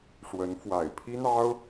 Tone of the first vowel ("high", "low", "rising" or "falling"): rising